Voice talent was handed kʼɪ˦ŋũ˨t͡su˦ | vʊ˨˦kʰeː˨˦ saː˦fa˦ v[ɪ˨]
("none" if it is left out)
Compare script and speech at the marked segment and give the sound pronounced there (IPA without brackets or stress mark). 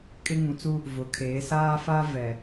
ɛ˨